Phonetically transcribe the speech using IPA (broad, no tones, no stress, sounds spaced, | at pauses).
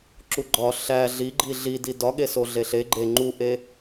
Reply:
ǁ u ɡ͡ǃ ɒ ɬ æ ɮ i ɡ͡ǃ i ɮ i d i d ɒ ɠ e s o ɮ e ɬ e ɡ͡ǃ e ŋ͡ǃ u ʔ e